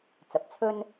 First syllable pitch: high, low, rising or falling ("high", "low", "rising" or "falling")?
rising